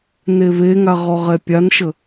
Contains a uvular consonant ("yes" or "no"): yes